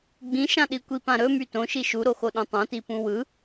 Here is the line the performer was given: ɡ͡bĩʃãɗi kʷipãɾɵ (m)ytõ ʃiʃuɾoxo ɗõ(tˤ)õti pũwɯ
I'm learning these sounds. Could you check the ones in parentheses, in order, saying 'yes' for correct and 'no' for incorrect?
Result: yes, yes

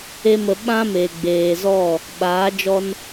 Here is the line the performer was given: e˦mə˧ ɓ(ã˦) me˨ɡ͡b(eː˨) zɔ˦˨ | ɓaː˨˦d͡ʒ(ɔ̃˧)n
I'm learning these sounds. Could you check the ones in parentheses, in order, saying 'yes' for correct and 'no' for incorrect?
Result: yes, yes, no

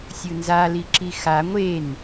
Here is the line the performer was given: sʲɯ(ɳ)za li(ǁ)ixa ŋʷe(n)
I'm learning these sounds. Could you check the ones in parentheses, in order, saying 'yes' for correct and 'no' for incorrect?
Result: no, yes, yes

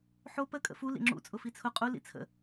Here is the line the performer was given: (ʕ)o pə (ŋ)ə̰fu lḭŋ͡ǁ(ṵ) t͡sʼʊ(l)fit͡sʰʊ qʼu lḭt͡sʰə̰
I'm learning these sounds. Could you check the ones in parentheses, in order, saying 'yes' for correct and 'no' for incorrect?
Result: no, no, yes, no

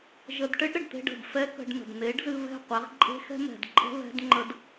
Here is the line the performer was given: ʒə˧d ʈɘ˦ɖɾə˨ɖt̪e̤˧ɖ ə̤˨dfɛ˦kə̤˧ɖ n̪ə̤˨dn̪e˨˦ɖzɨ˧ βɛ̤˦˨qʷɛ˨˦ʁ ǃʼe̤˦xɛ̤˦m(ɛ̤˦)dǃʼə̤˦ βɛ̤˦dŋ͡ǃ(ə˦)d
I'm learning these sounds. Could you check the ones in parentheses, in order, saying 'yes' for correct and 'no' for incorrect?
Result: no, yes

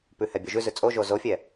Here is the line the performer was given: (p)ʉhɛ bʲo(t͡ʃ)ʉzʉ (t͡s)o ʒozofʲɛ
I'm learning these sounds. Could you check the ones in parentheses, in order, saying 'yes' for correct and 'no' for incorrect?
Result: yes, no, no

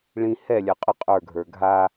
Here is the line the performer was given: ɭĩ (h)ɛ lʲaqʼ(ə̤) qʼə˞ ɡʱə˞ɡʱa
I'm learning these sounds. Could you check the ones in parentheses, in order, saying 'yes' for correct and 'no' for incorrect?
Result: yes, no

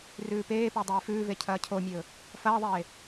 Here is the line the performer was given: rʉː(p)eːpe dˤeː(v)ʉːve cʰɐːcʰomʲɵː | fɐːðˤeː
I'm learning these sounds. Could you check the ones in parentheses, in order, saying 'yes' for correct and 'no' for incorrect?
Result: yes, no

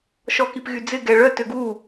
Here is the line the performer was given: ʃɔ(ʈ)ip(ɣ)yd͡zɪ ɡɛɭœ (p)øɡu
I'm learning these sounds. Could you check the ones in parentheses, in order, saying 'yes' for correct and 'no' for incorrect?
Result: no, yes, no

